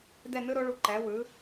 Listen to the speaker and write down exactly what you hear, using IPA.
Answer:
dɛ˥˩nɯ˦˥ɾo˩˥ɭu˩˥ ǃɛ˩˥wɯ˩˥

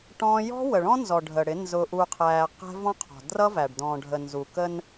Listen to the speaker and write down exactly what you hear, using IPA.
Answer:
ʈɔ̃ː˦ jɔ̤˦ wə˨ɭɔ̃˦nzɔ˨ ɖʱə˨ɽɪ˨˦ nzʊ˨ʔu˨qʰæː˨ qɛ̤˦ vɔ̃˦qʰɔ̤˨ drʌ˦væ˨ɖ dɔ̃ː˨ɖʱə˨ nzu˨kə˦n

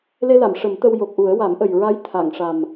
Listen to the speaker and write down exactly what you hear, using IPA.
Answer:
le˧la˨˩˨m ʂə˨˩˦mt̪ə˧wjo˨˩k̚ʔu˨˩˦ə̯ wa˨˩˦mʔə˨˩j ɹa˧˥j t̪ʰa˨˩˨ŋʂa˨˩m

